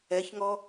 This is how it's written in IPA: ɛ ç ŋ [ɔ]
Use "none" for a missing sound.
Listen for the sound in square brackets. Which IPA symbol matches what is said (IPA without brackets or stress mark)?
ɔ